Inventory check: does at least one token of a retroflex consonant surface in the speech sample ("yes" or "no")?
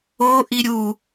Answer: no